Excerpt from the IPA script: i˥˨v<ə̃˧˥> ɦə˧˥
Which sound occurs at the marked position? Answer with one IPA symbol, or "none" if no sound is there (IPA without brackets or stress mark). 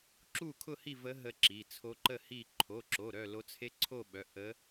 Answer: ə˧˥